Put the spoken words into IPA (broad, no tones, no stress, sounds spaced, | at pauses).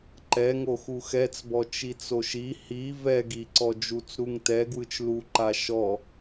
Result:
ǃ ɛ ŋ o x u x ɛ t͡s b ɔ t͡ʃ i t͡s o ʃ i h i v ɛ ɡ i ǀ ɔ d͡ʒ u t͡s ɾ u ŋ t ɛ ɡ w ɯ t͡ʃ l u ǃ a ʃ ɔ